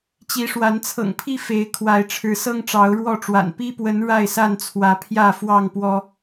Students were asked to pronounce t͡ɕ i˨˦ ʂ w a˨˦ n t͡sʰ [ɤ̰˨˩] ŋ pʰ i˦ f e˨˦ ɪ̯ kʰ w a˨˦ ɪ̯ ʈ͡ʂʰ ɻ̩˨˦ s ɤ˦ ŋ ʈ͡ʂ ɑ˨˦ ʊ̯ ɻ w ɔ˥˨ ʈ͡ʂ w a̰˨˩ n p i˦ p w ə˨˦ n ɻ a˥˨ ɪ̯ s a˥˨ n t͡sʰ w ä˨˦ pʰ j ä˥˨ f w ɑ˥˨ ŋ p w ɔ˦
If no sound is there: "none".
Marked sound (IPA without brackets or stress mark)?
ɤ̰˨˩